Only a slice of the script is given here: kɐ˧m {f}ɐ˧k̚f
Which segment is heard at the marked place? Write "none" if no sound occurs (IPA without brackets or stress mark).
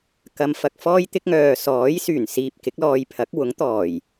f